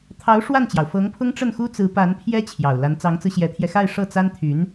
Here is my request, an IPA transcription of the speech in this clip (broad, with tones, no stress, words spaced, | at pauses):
t̪ʰɑ˧˥ʊ̯ ʂwa˥˩nt͡ɕjɑ˩ʊ̯ fɤ˧˥ŋpʰʊ˥ŋʈ͡ʂə˥˩n xu˥ t͡sɹ̩˧˥pa˧˥npʰjɛ˥ t͡ɕʰjɑ˨˩ʊ̯la˧˥n t͡sɑ˧˥ŋt͡sɹ̩˧ɕjɛ˧˥t̪ʰjɛ˧ xa˥˧ɪ̯ ʂɤ˥˩t͡sa˥nt̪ʰy˧˥n